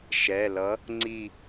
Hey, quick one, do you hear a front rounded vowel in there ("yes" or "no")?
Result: no